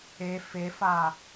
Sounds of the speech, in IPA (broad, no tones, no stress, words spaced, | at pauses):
e fefa